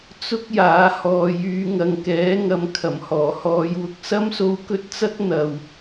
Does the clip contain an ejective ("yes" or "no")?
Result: no